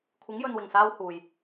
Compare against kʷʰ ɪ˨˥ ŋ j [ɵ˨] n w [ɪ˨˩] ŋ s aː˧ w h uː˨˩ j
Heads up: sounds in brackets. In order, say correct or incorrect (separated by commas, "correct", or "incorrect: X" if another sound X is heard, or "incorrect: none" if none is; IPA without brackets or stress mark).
correct, correct